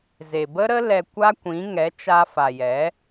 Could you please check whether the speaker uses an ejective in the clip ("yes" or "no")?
no